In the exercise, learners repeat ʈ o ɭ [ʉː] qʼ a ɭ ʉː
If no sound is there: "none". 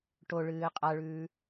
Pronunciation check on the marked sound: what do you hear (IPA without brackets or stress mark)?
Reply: ɨː